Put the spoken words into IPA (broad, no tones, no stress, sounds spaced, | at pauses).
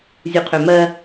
zʲ u qʰ ø m ɜ